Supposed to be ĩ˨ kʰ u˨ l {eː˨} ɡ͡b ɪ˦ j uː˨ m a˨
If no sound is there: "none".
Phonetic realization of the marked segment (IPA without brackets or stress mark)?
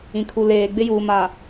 eː˨